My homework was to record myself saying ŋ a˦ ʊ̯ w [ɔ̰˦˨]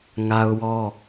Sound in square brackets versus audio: incorrect: ɔ˦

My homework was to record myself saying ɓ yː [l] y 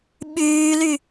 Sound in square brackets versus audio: correct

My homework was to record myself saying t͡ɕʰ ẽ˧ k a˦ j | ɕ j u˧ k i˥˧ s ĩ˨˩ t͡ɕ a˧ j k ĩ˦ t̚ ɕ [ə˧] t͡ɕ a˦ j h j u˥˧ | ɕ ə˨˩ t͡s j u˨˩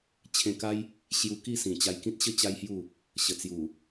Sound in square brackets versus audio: incorrect: ə˦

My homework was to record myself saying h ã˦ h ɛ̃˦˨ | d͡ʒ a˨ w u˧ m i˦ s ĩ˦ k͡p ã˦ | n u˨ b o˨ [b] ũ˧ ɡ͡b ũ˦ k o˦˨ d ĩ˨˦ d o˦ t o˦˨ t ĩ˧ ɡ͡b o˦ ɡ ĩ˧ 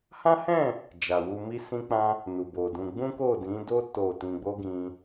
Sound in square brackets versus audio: incorrect: d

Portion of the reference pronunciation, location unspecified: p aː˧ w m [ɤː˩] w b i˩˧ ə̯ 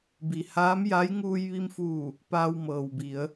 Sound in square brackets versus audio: correct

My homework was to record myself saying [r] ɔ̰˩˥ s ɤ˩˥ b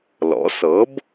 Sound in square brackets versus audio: incorrect: l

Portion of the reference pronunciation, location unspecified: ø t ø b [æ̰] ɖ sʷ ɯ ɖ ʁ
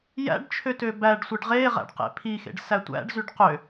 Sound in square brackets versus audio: incorrect: æ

